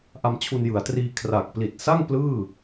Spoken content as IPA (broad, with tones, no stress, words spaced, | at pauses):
ʔa˧mt͡ɕʰu˧njɯ˩˦a̯triː˧ kʰra˨˩k̚ pli˨˩t̚sa˥˩ŋ plɯː˥˩